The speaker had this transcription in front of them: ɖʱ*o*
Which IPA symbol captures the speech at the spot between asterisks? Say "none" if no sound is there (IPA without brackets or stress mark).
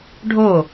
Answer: o